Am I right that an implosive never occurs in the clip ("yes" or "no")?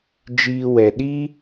no